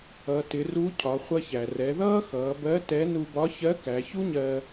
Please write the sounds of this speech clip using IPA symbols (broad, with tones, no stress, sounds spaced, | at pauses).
ʌ˩˧ t ɪ˩˧ r u˧˥ cʰ ɒ˩˧ χʷ ʌ˧ ç æ˩ r ɛ˩˧ ð ʌː˥ x ʌː˩˧ b ɜ˧˥ t ɛ˧˥ n u˧ b ɒ˧˥ ç ɜ˧˥ k æ˩˧ ç u˥ ɲ ɜː˧